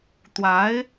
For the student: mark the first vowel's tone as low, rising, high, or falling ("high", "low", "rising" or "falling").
rising